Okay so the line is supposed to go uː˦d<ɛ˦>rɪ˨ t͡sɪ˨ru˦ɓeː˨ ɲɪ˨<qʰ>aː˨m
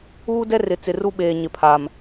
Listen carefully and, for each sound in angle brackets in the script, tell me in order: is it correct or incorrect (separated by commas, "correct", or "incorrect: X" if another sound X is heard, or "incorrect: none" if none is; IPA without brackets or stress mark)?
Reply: correct, incorrect: pʰ